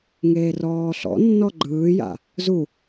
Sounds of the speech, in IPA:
ŋ eː r ɔː ɬ ɔ̰ nː ɔ ɡ͡ǃ ɯː j a̰ | z u

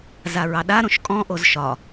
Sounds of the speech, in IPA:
z a ɹ ɑ ɗ a ɾ õ ʃ kʼ ɔ̃ ʔ o z ʃ ɒ

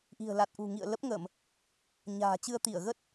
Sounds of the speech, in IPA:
ʔ i̤˨˩ ə̯ l a˨˩ t̚ ʔ ṳ˨˩ ŋ ḭ˧˨ ə̯ l ə˦˥ p̚ ŋ ə˧˩˨ m | ɲ a̤ː˨˩ t͡ɕ ɨ˧ ə̯ t̪ i˧˩ ə̯ ɣ ə˦˥ t̚

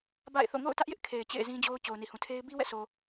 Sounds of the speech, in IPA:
b a̰˦˨ ɪ̯ θ o̰˦˨ ŋ o̰˦˨ ʊ̯ t ä˦ ʔ j ɪ˦ ʔ kʰ e˨ ɪ̯ t͡ɕ ḛ˦˨ ɪ̯ z ĩ˦ d͡ʑ o˦ ʊ̯ t͡ɕ o˨ ʊ̯ n i˨ h ũ˨ tʰ e˦ ɪ̯ b i˦ w ɛ̰˦˨ s o˨

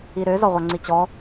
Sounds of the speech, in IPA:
i ɾ ø z ɔ ʁʷ œ ŋ͡ǀ i t͡ɕ ɔ

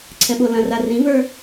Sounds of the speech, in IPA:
ǀʰ ɛ ɓ o l ɐ̃ r a r ĩ v ə˞

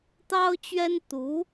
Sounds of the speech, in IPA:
t̪ ɑ˥ ʊ̯ t͡ɕ ɥ ɛ˥ n t̪ u˧˥

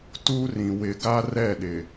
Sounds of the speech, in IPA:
t u˦ r ĩ˨ w ɪ˨ ɡ a˦ r ɛ˦˨ ɗ ɪ˨

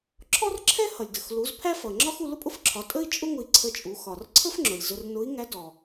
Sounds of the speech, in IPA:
ǁʰ ɔ˥ r ǁʰ ɛ˥ h ʌ˩ lʲ d ə˩ x l u˩˧ z pʰ æ˥ f ʌ˩ ŋ͡ǁ ɒ˥ x u˧ l ʊ˥ pʼ ʊ˥ f ǁʰ ɒ˩˧ tʼ ə˥ i̯ t͡ʃʼ ʊ˥ ŋ ʊ˧ i̯ ǀʰ ə˧ t͡ʃʼ u˩˧ x ɒ˩ r ǀʰ ə˥ f ŋ͡ǁ ʊ˩ lʲ z ʊ˧ r n ʊ˧˥ i̯ ŋ æ˧˥ d ɔ˩

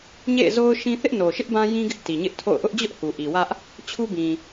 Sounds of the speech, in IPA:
ɲ ḛ˦˨ ɪ̯ z o˦ ʊ̯ ʃ ĩ˦ θ ɪ˦ ʔ n o˨ ʃ ɪ˦ ʔ b ã˦ j ĩ˦ ɡ ɪ˦ ʔ t i˨ ɲ ɪ˦ ʔ tʰ o̰˦˨ ʊ̯ ʔ ʊ˦ ʔ d͡ʑ ʊ˦ ʔ h u˨ ʔ i˨ w ä˦ ʔ | t͡ɕʰ u˦ b ĩ˨

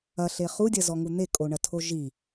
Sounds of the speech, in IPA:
ɐ ɬ e χ u dʲ ɐ z ɔ ŋ u n̪ e kʼ o ɳ ɐ tʰ o ʒ i

